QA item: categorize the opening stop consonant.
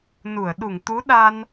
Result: implosive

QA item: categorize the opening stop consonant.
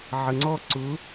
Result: click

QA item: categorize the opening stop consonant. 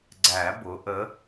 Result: click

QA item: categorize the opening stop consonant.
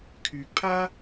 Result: aspirated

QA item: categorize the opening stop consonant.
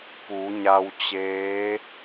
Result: plain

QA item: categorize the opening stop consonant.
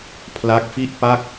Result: aspirated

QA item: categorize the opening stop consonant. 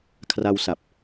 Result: aspirated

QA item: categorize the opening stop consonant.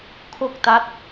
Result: aspirated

